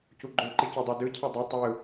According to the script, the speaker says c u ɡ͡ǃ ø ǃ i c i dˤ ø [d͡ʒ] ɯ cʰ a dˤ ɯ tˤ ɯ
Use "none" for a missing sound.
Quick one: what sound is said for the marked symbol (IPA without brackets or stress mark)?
d